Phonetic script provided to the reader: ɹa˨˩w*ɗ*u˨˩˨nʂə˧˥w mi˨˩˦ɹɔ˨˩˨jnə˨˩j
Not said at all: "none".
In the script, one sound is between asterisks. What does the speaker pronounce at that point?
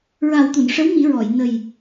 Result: t̪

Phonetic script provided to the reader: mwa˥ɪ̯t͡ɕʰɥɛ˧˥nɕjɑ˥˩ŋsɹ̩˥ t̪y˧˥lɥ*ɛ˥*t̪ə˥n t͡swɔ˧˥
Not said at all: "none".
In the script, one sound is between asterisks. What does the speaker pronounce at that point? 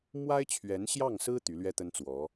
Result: ɛ˥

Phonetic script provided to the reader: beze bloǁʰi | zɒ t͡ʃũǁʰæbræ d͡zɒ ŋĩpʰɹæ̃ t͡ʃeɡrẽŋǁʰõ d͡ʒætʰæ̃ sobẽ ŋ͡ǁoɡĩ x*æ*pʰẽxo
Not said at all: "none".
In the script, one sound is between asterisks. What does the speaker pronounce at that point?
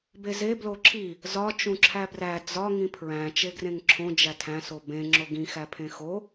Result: æ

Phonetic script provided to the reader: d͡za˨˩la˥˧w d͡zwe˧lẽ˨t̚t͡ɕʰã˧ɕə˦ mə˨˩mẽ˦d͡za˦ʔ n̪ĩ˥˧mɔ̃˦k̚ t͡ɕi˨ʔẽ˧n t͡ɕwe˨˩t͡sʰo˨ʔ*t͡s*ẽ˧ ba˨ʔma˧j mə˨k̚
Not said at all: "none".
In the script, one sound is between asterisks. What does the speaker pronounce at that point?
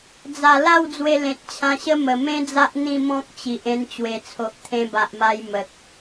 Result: t̪ʰ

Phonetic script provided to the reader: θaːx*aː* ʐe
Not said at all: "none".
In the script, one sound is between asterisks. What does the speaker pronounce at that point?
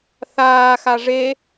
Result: a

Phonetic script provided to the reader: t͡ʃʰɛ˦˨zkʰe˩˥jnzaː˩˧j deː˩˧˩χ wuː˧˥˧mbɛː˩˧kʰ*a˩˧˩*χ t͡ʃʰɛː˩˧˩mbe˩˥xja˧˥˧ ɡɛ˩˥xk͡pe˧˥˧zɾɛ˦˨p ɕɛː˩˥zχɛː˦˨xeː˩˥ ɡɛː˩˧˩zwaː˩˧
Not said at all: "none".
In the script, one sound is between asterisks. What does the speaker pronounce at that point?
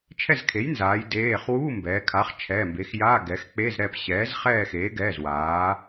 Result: a˩˥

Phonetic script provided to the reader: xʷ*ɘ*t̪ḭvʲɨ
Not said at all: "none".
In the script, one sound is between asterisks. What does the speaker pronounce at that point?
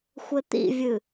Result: ɘ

